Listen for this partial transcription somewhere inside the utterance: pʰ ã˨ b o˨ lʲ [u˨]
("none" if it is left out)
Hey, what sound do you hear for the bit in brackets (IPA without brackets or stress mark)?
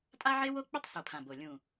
ũ˨